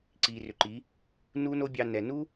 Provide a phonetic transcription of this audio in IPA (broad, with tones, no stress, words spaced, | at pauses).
ǀiː˨rʏ˨ǃiː˨˦ | nu˦no˦bʲɑ˧ nɛ˨nu˦